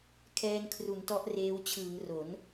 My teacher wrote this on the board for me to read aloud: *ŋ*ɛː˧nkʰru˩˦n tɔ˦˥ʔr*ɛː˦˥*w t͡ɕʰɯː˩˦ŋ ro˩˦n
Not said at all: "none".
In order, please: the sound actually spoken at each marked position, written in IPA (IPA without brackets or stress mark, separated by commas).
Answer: kʰ, eː˦˥